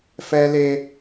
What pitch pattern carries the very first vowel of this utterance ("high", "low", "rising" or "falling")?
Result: high